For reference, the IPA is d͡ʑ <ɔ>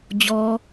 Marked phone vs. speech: correct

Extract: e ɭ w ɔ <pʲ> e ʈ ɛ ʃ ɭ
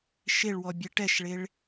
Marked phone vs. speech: incorrect: bʲ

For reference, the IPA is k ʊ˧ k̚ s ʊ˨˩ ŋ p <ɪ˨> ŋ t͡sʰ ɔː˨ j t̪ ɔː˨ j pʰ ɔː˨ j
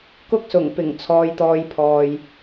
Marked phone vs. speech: incorrect: ɪ˨˩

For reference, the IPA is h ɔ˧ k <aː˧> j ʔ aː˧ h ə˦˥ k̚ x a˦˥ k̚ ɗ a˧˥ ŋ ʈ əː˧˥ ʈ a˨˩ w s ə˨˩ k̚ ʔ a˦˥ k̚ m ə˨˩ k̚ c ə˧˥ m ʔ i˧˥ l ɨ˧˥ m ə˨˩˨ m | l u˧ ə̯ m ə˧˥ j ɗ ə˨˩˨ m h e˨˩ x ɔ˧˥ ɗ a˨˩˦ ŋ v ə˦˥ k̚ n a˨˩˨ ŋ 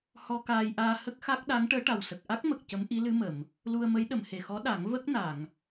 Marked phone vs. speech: correct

